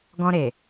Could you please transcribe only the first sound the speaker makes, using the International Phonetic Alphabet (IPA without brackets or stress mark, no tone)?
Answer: ɡ